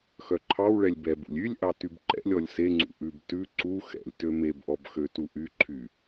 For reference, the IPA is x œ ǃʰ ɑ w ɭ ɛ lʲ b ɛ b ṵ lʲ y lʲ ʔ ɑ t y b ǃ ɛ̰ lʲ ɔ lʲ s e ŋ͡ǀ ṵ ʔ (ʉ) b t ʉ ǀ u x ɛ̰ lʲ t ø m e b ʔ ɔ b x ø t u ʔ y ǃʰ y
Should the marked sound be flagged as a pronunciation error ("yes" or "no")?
no